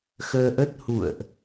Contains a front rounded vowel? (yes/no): no